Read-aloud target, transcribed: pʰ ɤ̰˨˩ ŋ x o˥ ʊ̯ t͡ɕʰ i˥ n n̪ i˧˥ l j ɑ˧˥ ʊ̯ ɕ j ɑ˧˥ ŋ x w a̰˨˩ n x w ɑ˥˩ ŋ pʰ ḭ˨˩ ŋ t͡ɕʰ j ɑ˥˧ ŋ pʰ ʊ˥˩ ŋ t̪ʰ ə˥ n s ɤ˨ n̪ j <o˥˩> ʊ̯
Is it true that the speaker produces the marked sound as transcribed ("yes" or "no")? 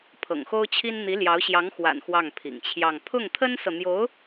no